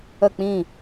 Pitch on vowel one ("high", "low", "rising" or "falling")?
falling